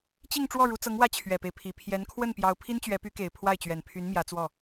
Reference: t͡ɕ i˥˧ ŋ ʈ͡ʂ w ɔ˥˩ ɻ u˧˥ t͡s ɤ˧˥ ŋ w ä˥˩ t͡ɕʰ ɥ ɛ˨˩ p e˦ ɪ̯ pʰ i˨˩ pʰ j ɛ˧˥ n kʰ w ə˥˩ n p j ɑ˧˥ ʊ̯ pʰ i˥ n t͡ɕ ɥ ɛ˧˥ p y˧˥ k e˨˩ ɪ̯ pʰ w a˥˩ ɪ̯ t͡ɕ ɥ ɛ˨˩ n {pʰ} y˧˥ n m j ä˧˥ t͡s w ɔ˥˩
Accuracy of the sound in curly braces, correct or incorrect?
correct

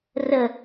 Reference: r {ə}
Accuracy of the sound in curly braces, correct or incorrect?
correct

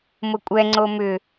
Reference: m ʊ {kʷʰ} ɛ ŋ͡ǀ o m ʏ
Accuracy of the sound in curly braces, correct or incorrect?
incorrect: kʷʼ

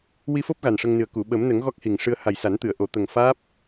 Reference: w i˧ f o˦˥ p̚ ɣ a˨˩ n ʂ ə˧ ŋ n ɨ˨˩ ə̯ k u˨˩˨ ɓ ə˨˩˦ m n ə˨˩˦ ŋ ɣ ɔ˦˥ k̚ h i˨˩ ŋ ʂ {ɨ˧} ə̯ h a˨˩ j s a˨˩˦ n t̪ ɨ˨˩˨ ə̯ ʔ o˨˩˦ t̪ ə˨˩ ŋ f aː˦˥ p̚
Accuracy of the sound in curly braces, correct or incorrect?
correct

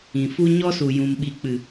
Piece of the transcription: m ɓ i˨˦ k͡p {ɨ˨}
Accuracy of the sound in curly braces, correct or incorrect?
correct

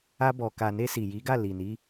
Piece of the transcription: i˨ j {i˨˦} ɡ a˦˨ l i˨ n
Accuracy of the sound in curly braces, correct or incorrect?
correct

